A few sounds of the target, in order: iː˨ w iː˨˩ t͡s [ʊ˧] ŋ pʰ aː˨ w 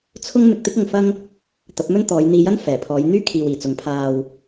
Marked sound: incorrect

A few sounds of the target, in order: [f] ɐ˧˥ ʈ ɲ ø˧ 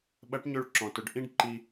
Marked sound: incorrect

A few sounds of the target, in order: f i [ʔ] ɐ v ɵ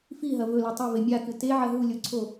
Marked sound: incorrect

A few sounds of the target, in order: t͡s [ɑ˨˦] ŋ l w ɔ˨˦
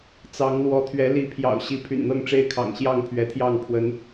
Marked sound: correct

